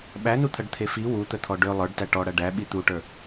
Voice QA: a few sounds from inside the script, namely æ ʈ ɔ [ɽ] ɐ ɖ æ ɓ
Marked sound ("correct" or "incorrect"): correct